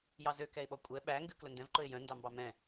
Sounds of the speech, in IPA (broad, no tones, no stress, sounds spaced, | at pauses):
j ɑ z ø k ɛ ɪ̯ ɓ ɔ kʷʼ ɛ ɓ æ ŋ ɡ ʉ k l ɵ n d ɛ̃ v ǃ ɵ ɪ̯ j œ̃ n d ɑ m b ɑ m ɛ̃